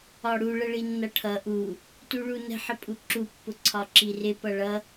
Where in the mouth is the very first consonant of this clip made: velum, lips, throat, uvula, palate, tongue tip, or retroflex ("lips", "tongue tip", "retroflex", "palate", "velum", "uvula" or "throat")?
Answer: retroflex